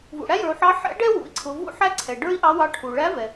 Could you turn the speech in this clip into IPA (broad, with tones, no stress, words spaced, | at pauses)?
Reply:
vṵ˩ɽæ˥jə˞˩˧u̯ħɑ˧˥ ħɛ̰˧˥ɖɛ˥ wṵ˩˧i̯ǀʰʊ˩˧ vṵ˥ħæ˥ ǀʰɛ˩ɖə˞˥i̯ʔɑ˧˥wɑ˧˥ ʈʰu˩ɭæ˧˥vɛ˩